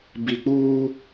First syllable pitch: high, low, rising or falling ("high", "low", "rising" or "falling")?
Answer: low